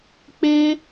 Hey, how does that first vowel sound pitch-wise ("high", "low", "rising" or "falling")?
high